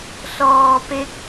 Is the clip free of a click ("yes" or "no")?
yes